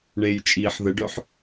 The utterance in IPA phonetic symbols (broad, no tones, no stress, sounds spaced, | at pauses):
ɳ eː j t͡ʃʼ iː ħ ð ə ɖ œ ħ